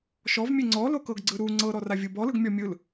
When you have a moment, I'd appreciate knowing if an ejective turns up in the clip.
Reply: no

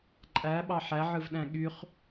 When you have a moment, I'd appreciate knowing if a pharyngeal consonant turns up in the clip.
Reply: yes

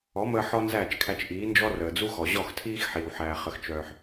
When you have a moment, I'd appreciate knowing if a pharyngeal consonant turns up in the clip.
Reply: yes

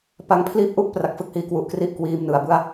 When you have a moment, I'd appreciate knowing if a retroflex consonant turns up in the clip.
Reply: no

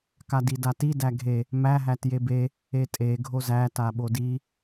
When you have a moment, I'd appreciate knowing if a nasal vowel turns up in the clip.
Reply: no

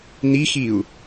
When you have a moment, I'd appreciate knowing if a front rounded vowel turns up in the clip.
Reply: no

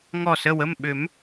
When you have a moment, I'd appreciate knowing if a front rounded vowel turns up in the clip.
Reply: yes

